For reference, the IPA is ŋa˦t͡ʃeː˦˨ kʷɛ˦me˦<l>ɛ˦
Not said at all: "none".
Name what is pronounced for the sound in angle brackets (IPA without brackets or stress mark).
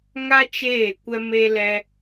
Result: l